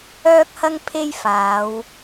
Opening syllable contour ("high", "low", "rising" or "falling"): high